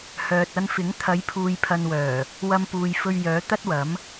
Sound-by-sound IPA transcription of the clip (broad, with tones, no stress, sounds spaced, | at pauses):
h œː˨ t̚ ɐ˧ n f ɪ˨˥ ŋ t̪ʰ ɐ˨˧ j pʰ uː˨ j pʰ ɐ˨ n w œː˨˩ | w ɐ˧ m p uː˨ j f ɵ˧ ɥ j œː˨˥ t̪ ɐ˥ t̚ w ɐ˨˥ m